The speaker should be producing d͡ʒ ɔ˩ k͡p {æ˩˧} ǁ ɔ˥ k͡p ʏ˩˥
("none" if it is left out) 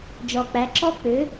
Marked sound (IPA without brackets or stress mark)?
æ˩˧